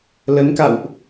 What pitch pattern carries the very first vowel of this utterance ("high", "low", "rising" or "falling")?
rising